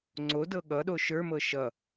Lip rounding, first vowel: rounded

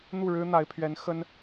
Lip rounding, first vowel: rounded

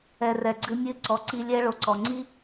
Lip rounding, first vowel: unrounded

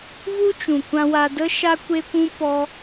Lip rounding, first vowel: rounded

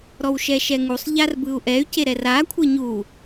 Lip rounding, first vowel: rounded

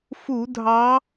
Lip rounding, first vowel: rounded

